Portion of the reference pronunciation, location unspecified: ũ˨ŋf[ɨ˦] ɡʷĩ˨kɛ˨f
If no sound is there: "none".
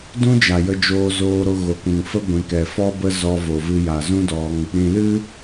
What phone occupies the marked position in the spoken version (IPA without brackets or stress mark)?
ə˦